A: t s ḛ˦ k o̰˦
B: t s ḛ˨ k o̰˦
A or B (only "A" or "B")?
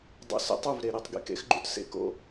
A